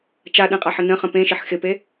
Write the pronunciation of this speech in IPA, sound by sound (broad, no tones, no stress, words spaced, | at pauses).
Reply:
t͡ʃaɗẽqʼaħə nə̃χə̃ pẽʃɪħ xɪpe